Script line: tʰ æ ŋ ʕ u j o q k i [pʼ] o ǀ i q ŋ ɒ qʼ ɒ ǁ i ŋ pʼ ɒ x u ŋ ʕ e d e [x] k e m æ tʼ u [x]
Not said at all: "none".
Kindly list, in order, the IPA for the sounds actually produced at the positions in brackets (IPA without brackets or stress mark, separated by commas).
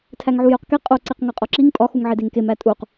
qʼ, ŋ, q